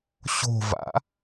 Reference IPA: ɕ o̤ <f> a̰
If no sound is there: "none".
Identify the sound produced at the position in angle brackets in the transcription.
v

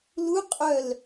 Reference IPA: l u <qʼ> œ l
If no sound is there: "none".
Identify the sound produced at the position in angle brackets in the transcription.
qʼ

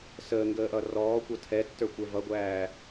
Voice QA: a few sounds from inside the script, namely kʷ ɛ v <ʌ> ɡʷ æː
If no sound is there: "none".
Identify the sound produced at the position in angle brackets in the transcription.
ʌ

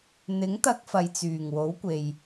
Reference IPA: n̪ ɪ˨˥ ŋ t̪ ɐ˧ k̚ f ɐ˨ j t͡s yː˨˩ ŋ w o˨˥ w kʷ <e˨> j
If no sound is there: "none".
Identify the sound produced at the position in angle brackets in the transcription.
e˨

